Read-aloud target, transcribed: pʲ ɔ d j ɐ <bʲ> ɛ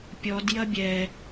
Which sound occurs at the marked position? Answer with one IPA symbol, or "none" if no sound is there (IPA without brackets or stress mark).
bʲ